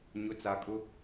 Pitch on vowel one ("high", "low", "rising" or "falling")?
rising